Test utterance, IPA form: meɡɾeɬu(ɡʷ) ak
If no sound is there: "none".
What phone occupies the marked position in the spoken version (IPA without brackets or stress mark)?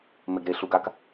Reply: ɡ